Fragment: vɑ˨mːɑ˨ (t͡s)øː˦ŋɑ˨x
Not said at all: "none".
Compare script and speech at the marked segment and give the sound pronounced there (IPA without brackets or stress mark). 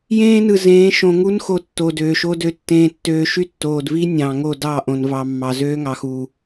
z